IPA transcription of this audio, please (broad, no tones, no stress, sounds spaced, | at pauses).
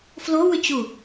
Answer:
f l o w ʏ t͡ɕ u